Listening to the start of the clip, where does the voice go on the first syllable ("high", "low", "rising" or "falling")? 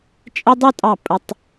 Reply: high